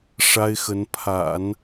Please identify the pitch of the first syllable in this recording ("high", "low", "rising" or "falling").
high